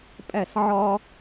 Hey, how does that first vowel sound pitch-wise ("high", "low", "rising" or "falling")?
falling